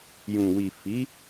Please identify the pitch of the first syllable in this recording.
low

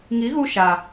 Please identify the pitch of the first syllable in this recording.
rising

